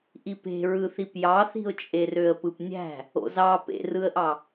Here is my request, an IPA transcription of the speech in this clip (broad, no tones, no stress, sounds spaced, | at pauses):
ʔ i p e̤ ɹ ɯ θ i p j ɑ θ i̤ ʊ̯ t͡ʃʼ e r ø ə̯ p ɯ p nʲ æ̤ | o̰ z ɑ p ḛ r ɯ ə̯ ʔ ɑ